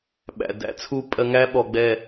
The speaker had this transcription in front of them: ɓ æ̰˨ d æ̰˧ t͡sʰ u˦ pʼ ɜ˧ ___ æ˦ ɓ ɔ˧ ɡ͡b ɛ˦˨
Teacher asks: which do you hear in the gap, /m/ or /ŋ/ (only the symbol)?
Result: ŋ